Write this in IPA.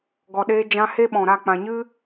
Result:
ɡɔ˨ɗeː˧ d͡ʒã˧ he˦ ɓɔ̃˨ɾa˦˨ k͡pã˨ɲɨ˦

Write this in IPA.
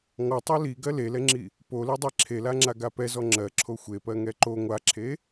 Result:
ŋɔtˤo li ɡɜlelɛŋ͡ǁi | poledˤe ǁʰelaŋ͡ǁa ɡapɛzɔ ŋ͡ǁɜǁʰo xʷepɜ ŋɛǃo ŋʷaǁʰe

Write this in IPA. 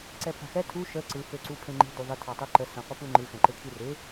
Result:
ǀɛpʰa̤xɛ tʰu ʃə ǀɯ føǀupʰẽŋ͡ǃi̤ duðˤɪ tʰɑtˤuǃə sɛ̃qʷɯpuŋ͡ǃɯ xɛ̃ǃekʰirɪ

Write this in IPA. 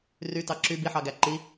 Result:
rytɑ ǁy biħɑɡæ ǃi

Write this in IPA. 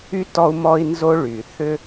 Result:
y˥tɔ˦u̯mɔ˦i̯nzo˦ ɭy˩ θʏ˥

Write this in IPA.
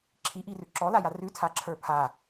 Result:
ǁʰiʔirʉ ǁɔlaja rʉtʰaǁʰə˞ pʰa

